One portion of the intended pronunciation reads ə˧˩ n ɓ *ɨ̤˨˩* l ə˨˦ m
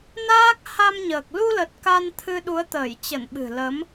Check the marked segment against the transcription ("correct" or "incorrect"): correct